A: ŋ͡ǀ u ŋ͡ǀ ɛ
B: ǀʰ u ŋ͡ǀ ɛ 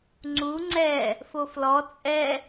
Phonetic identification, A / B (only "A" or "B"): A